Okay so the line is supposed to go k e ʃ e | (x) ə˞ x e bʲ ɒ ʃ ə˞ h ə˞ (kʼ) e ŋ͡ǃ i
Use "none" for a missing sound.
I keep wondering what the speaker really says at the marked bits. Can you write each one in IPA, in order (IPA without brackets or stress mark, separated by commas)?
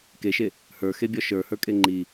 h, kʼ